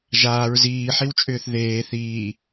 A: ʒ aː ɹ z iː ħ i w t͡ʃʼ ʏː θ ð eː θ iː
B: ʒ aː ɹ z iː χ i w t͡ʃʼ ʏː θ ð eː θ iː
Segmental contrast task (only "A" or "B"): A